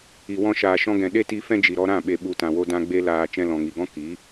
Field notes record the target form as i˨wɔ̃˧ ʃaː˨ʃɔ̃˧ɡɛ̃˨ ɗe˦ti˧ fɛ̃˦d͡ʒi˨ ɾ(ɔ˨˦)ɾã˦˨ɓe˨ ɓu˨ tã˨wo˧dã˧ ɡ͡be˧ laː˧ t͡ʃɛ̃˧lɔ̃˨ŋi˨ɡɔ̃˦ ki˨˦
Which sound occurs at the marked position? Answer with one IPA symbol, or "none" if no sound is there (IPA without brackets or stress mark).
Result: ɔ˧